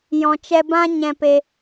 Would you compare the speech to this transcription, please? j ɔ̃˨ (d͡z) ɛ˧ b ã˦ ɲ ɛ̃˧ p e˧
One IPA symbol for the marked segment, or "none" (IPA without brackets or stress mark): t͡ʃ